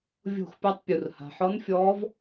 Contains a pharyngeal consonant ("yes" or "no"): yes